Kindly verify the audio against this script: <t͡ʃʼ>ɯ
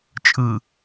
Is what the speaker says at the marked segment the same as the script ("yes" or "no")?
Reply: yes